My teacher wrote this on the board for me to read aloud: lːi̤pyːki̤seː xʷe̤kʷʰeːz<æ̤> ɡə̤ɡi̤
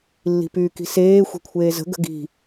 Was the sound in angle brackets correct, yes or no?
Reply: no